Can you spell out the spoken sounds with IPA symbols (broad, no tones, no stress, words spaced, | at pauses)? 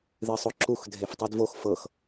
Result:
ðɨsˤoǁux dʱeftˤidvox fɤx